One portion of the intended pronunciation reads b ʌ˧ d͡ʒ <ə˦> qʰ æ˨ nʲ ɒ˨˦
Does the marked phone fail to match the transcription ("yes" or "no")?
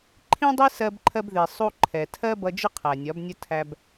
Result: yes